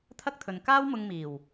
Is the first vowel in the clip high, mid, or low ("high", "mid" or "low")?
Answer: low